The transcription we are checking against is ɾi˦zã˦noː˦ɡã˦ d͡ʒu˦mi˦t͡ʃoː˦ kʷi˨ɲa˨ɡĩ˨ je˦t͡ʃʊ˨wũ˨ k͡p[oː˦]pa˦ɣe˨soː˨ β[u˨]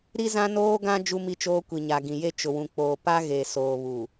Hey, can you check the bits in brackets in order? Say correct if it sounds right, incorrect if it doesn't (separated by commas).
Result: incorrect, correct